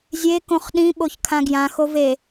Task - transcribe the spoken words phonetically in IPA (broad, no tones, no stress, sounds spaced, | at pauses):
zʲ e k õ χ ɗ ĩ ɓ o ç kʰ ã ɡ j ã x o v e